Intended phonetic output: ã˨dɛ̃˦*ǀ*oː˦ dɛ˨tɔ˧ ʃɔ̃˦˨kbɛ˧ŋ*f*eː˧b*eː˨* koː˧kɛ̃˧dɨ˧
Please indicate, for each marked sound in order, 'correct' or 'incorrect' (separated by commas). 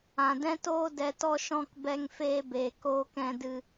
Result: incorrect, correct, correct